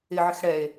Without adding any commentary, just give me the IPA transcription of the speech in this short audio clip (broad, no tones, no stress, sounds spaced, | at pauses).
ɪ ʕ ɪ x ɽ ɛ e̯